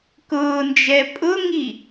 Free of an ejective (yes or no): no